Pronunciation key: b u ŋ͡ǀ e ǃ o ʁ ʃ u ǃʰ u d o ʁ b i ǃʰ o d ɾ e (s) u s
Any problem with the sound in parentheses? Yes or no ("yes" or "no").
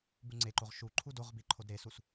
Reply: no